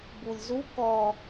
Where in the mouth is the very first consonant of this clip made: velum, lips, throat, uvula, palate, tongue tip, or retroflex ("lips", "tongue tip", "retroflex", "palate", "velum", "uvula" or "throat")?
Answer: lips